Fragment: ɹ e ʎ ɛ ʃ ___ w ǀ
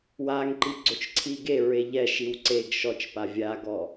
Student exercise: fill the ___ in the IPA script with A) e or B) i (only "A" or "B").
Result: B